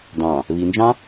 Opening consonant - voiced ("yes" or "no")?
yes